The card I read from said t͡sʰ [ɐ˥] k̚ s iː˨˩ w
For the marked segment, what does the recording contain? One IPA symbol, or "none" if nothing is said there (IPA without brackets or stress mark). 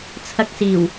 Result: ɐ˧